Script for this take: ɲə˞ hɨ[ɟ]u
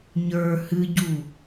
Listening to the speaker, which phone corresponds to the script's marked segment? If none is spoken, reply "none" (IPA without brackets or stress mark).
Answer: ɟ